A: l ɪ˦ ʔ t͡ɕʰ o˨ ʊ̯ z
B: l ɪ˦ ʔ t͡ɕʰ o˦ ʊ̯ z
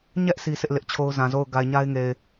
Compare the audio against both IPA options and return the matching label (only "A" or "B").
B